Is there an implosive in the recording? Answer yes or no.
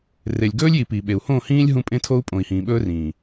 yes